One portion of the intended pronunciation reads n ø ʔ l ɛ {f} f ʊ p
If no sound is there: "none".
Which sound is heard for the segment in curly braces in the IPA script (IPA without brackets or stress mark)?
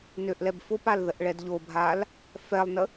b